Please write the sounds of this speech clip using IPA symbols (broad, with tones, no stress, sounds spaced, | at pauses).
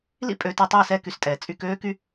l ḭ˦ pʼ øː˧ t ɛ˧ tˤ ɵː˦˨ s ɛ˦˨ k y˧ s tʼ ɛː˨ t͡sʼ y˧ k øː˦ k y˦